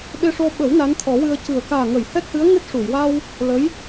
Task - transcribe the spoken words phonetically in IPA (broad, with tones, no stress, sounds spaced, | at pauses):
ɓ e˧ ʂ o˧ ɓ ə˨˩˦ w n a˧˥ n t̪ʰ ɔ˨˩˦ w ɨ˧ ə̯ c ɨ˨˩ ə̯ k aː˨˩ ŋ ə˨˩˨ j h ɛ˦˥ k̚ h ɨ˧˥ ə̯ ŋ ɨ˦˥ t̚ ʂ u˨˩˨ j w a˧ w | l ə˧˥ j